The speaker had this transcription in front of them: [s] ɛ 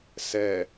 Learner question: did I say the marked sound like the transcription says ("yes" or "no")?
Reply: yes